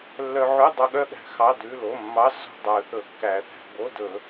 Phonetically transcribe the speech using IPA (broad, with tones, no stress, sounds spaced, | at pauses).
lː œ˧ ʕ ʉ˧˥˧ dˤ ɵ˧ ɠ œ˥˧ ɠ æ̤˨˩˦ x ɑ˩˧˩ d ʉ˩˧˩ l o˩˧˩ mː ɑ˧˥˧ s o̤˥˧ dˤ œ˨˩˦ θ ɵ˨˩˦ kː æ˨˩˦ θ æ̤˧ b o˧˥˧ d ɵ˨˩˦